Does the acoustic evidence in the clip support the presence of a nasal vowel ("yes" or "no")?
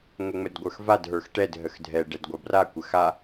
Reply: no